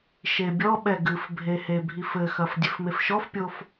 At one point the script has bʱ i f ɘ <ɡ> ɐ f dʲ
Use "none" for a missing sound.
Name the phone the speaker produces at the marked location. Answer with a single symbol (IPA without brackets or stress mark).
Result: x